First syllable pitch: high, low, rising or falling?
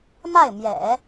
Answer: falling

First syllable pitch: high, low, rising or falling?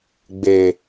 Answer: low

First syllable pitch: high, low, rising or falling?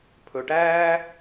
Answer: low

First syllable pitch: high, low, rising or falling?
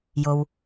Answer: low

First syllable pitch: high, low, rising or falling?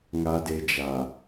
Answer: low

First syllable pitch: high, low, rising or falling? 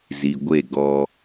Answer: low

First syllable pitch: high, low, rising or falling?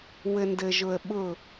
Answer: low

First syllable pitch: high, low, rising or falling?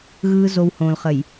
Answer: high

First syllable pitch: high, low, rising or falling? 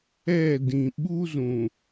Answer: falling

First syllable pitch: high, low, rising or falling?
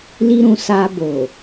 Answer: high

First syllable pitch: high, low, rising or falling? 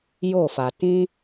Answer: falling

